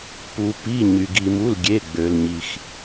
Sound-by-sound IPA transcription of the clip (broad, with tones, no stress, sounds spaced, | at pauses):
p u˩ p i˩˧˩ ɲ y˩ ɡ i˩ m u˩˧˩ l ɡʲ e˩˧˩ ɡ͡b ø˩ l ɲ i˩ x